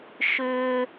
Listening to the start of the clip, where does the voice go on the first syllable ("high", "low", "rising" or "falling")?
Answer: high